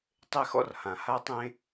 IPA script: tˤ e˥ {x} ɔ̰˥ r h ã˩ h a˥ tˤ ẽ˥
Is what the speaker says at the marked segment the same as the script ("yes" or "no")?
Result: yes